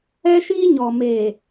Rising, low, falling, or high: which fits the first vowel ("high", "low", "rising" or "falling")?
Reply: high